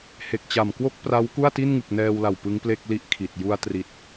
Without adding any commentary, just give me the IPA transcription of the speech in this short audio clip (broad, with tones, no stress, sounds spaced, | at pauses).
h e˨˩ k̚ t͡ɕ a˨˩ m k w o˥˩ k̚ p r a˦˥ w k u˥˩ a̯ t i˥˩ n ŋ ɯ˨˩ k̚ n ɛː˧ w l a˨˩ w p ɯ˦˥ ŋ p l e˥˩ k̚ l i˥˩ ʔ kʰ i˨˩ t̚ j u˧ a̯ t r i˨˩ t̚